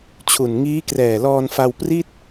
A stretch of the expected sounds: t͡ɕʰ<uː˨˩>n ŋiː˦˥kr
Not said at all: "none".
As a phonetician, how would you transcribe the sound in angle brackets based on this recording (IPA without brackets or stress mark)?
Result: u˨˩